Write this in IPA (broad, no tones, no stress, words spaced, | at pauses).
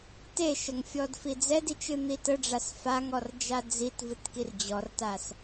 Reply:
teʃəŋfʲɔd fid͡zɛdit͡ʃ ɨn̪itəɖ͡ʐas faŋ ɔrd͡ʒad͡zitvɨt kird͡ʑɔrtas